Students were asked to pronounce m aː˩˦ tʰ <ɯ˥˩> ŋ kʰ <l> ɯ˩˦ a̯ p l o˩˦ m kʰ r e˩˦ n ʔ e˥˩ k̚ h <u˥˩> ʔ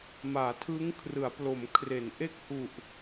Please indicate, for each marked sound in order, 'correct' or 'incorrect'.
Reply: incorrect: ɯ˦˥, incorrect: r, incorrect: u˨˩

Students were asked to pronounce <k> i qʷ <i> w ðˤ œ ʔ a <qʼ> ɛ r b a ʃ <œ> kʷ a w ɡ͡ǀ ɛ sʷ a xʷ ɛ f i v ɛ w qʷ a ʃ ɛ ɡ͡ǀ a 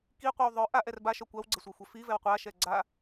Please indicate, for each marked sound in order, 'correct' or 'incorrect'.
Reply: correct, correct, incorrect: ʔ, correct

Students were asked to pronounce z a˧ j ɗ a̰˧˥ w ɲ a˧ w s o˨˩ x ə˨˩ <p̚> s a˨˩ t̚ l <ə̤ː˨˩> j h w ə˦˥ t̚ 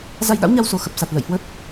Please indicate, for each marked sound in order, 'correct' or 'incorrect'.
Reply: correct, incorrect: ə̰ː˧˨

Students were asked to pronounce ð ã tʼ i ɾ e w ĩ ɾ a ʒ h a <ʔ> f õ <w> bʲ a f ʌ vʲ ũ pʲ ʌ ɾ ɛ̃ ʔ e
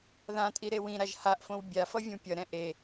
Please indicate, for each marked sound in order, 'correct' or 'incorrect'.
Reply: correct, correct

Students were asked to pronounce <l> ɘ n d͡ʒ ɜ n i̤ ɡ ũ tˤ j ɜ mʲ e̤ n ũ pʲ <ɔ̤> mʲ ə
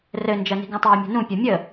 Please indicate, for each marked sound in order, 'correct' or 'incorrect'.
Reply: incorrect: r, incorrect: ɔ

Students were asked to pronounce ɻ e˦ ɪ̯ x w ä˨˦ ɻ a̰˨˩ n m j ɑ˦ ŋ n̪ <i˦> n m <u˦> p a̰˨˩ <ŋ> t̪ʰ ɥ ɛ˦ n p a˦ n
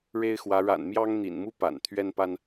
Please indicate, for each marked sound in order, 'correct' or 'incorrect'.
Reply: incorrect: ḭ˨˩, correct, incorrect: n

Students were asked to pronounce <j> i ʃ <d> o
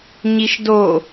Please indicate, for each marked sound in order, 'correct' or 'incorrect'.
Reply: incorrect: ɲ, correct

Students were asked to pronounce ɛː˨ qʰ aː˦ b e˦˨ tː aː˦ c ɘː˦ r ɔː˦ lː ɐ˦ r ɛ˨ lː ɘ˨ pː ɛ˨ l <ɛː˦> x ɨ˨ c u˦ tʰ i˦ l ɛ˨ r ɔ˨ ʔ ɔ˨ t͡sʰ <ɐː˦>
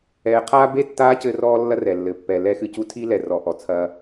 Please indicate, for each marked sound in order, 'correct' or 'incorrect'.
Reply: incorrect: ɛ˦, correct

